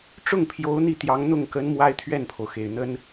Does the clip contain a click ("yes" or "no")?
no